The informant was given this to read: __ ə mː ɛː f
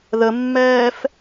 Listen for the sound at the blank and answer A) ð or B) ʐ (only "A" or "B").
A